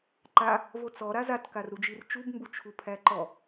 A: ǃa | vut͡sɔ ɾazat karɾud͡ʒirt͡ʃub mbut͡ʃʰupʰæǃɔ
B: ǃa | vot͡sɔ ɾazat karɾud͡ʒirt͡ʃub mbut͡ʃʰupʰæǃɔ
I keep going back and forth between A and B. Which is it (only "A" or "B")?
B